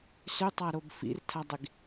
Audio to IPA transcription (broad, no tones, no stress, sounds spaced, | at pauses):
s ʏ tˤ a ɾ o b f ḭ r tʰ a dˤ i ɡ